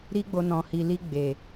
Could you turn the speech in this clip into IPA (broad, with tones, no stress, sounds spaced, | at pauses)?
ɾ i˦ ɡ͡b o˧ n ɔ̃˨ h i˨ l i˧ ɡ͡b e˨